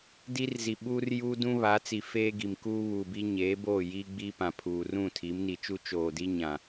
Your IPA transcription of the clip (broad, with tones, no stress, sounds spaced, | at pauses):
d i˦ r z i˨ ɓ uː˦ r j uː˦ d ũ˦ β a˨˦ t͡s i˨ f eː˦ ɡ i˨ m k uː˦ β uː˨ b i˦ ɲ eː˨˦ b oː˦˨ j iː˦ ɡ͡b iː˦ p ã˨ pʰ uː˨ r ũ˦˨ tʰ i˨˦ m n i˨ t͡ʃ u˦ t͡ʃ oː˨ d i˦ ɲ ã˨